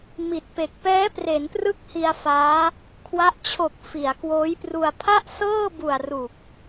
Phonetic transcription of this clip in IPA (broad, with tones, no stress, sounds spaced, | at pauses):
m i˨˩ t̚ p e˨˩ k̚ p ɛː˦˥ p r e˩˦ n p r ɯ˦˥ k̚ h i˧ a̯ f aː˦˥ | kʰ w a˦˥ ʔ t͡ɕʰ o˨˩ k̚ f i˩˦ a̯ k w oː˦˥ j p r u˧ a̯ pʰ a˥˩ ʔ s ɤː˥˩ b u˨˩ a̯ r u˨˩ k̚